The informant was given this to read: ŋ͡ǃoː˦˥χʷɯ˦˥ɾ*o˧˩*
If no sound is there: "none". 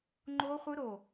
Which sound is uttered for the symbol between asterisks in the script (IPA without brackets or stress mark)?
o˧˩